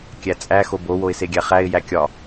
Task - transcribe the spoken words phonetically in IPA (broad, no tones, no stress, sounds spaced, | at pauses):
kʲ æ t͡sʼ æ x o b o w o ɪ̯ s e ɡʲ æ χ æ ɪ̯ j æ kʲ ɒ